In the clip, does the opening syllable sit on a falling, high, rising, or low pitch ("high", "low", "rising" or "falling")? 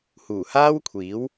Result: low